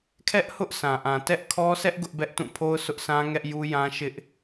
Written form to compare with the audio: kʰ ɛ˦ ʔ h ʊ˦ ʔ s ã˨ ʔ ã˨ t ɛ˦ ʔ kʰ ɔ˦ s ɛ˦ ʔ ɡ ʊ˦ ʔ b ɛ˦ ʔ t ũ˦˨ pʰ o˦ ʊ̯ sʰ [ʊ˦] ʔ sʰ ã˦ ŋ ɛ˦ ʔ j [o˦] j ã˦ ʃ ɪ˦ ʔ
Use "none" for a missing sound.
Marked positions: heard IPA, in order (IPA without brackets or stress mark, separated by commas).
ʊ˦, u˦